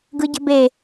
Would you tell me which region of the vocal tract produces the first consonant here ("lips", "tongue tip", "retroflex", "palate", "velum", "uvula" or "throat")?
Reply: velum